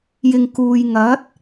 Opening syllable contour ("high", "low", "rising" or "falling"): low